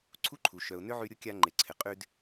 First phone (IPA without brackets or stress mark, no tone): ǀʰ